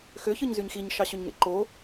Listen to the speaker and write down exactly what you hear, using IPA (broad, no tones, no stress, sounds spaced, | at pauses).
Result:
x ø ç ɯ ɲ z y ɲ x i ɲ ʃ ɑ ɕ ø ɲ ŋ ḛ ǃ o